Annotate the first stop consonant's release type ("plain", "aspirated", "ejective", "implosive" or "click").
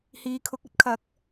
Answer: aspirated